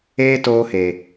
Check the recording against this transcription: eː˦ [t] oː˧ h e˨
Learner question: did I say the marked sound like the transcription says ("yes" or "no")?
yes